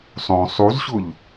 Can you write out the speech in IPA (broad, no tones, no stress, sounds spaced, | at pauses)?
sˤ õ sˤ u z ɕ ʊ ʎ